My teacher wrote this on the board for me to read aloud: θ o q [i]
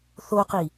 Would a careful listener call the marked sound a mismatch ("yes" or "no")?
no